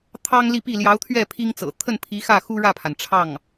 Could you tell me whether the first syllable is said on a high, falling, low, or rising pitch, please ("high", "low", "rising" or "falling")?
high